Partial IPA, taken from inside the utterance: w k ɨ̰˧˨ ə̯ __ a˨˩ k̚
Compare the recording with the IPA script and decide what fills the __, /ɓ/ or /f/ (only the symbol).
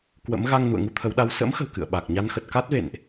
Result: ɓ